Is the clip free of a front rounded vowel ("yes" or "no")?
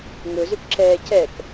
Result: no